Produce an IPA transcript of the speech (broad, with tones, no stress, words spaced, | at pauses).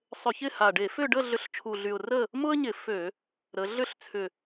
sˤʏ˧˩˧çɪ˥˨ha˨˩ɖe˧˩˧ fʏ˥˨ ɖə˥˨ɮʏ˨˥ɬt͡ʃʰu˨˩ɮy˨˩ʊ̯ rə˥˨ | mʊ˥ə̯ɲɪ˧˩˧fø˧˩˧ | ɾə˩˧ ɮʏ˥˨ɬ t͡sʰʏ˨˩